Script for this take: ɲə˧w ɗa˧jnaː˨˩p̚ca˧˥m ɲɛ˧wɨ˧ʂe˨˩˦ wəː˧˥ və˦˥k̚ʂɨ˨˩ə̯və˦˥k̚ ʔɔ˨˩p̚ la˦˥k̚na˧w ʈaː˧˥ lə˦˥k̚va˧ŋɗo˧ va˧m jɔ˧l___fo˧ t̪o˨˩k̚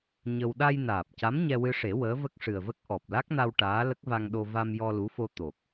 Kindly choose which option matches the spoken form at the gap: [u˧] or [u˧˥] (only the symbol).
u˧˥